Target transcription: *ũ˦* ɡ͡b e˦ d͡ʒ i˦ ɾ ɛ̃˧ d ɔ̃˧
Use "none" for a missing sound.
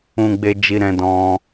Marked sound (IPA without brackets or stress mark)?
ũ˦